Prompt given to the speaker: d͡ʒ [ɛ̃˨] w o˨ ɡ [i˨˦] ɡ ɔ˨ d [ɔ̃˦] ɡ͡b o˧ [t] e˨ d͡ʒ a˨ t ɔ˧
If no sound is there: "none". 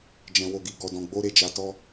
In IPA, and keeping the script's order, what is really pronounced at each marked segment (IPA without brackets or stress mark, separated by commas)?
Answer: ɛ̃˨, i˨, ɔ̃˨, ɾ